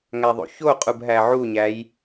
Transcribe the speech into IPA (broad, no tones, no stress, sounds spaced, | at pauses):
ŋ æ ðˤ o̰ ç o qʼ u b ɦ æ ʕ u ɲ æ j